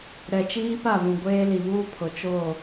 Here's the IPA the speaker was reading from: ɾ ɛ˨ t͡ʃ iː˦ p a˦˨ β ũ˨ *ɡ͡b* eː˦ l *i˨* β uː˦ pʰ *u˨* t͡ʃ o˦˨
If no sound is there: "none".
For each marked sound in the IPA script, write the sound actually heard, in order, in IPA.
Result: ɡʷ, i˨, ʊ˨

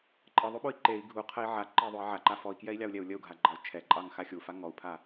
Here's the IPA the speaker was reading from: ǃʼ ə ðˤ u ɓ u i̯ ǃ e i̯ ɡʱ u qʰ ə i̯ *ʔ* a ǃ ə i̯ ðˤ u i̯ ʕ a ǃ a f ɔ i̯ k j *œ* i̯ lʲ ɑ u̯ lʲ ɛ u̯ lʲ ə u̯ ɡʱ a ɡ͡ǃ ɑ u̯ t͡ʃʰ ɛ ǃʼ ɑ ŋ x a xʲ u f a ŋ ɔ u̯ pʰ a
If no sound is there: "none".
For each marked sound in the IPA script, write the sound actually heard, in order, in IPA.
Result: ʕ, ɛ

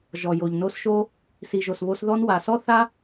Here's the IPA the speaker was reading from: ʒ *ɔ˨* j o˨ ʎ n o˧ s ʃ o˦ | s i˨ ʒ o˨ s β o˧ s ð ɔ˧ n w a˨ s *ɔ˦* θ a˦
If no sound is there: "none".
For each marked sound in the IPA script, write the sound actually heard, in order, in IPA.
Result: ɔ˨, ɔ˦

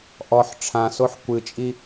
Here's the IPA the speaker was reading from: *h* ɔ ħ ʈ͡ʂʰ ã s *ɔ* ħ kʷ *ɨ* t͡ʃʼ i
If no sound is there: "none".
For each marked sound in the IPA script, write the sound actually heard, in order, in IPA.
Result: ʔ, o, ɨ

